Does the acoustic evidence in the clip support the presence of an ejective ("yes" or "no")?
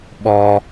no